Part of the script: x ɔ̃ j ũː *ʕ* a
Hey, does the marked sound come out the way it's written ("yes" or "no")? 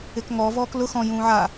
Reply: yes